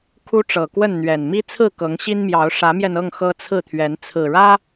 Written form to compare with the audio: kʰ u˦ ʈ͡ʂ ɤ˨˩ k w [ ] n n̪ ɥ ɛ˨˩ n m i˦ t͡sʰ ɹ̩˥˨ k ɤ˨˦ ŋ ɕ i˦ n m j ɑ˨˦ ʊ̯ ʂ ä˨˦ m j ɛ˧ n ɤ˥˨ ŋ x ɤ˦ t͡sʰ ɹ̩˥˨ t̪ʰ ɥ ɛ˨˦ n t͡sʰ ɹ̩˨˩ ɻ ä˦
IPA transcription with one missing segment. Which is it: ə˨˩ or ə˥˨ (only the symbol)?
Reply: ə˥˨